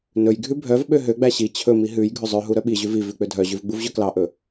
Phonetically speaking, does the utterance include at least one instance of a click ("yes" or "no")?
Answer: no